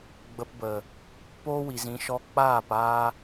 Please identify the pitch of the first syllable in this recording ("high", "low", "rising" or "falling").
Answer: low